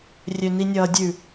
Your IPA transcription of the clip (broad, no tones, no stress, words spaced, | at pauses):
rʲøninʲʌːdʲʉ